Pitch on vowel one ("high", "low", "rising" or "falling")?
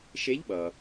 rising